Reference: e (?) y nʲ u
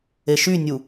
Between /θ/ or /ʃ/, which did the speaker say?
ʃ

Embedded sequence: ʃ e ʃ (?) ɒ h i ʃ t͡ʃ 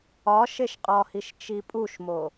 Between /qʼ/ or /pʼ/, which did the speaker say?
qʼ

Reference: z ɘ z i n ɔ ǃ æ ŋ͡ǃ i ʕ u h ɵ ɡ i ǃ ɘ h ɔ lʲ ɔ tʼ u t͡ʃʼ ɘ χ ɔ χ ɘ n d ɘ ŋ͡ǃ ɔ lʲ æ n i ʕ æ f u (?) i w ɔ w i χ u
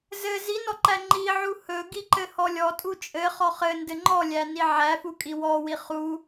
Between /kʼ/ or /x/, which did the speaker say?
kʼ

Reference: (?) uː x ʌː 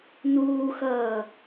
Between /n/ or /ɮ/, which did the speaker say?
n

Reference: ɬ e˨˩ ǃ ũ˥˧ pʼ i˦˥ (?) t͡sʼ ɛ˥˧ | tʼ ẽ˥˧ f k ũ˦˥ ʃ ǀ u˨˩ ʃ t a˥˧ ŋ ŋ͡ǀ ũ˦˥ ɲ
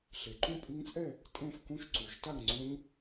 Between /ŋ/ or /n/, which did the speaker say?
ŋ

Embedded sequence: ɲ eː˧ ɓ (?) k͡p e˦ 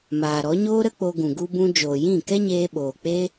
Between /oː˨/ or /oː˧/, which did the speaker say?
oː˨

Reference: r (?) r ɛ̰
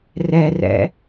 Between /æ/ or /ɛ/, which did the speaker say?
ɛ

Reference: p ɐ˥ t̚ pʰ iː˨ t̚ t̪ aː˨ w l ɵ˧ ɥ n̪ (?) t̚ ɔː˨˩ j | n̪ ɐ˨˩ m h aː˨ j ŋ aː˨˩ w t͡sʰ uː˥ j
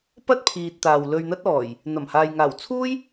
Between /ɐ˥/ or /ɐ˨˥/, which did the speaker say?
ɐ˥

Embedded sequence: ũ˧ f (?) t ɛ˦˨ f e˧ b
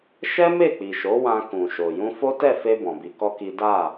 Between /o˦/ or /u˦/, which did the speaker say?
o˦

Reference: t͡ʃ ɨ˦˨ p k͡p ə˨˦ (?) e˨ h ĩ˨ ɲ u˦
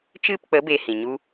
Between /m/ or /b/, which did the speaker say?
b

